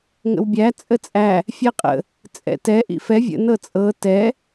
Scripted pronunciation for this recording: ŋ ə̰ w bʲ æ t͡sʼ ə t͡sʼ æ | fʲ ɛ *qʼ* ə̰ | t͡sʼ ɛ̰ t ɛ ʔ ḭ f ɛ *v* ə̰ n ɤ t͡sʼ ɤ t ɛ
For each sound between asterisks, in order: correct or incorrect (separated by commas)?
correct, incorrect